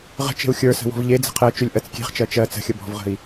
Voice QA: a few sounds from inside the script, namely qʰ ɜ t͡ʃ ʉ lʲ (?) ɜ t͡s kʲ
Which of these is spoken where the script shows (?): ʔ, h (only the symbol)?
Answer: ʔ